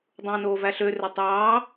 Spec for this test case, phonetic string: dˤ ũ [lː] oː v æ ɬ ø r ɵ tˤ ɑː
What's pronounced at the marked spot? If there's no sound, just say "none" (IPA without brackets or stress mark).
n